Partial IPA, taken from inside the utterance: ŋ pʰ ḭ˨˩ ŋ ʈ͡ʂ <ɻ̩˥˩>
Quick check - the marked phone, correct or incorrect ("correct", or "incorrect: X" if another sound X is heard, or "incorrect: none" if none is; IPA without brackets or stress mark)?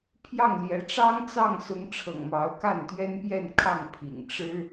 incorrect: ɻ̩˥